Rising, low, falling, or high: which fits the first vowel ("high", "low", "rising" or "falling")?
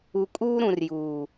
low